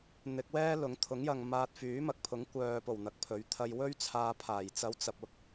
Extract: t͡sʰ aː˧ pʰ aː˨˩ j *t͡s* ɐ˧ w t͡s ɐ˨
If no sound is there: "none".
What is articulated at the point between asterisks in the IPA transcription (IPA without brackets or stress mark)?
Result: t͡s